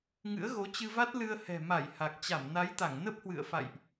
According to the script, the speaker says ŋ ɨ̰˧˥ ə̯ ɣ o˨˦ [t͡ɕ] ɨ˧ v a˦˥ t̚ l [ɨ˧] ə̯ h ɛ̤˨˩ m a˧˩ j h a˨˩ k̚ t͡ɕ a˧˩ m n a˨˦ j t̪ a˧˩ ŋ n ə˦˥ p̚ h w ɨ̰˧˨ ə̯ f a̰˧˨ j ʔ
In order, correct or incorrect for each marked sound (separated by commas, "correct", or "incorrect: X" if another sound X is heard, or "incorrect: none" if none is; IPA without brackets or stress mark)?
correct, correct